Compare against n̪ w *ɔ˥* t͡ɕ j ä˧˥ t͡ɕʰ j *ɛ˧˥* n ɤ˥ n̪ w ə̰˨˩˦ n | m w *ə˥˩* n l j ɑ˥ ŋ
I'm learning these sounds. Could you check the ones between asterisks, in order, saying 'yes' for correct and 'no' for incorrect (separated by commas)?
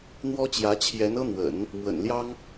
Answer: yes, yes, no